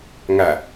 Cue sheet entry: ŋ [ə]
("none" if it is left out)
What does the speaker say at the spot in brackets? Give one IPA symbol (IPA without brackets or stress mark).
æ